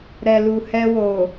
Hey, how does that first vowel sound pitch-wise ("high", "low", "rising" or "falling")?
low